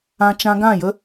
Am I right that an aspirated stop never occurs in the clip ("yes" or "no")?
yes